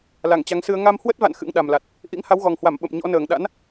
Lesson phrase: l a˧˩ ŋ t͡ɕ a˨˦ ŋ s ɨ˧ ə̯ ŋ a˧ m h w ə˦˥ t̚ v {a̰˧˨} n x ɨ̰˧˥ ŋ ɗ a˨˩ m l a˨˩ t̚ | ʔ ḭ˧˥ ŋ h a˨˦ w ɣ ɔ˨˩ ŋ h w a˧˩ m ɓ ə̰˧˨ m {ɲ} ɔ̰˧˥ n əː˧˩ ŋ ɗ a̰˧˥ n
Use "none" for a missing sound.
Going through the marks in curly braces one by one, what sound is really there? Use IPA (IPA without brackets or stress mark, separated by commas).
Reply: a̰˧˨, ɲ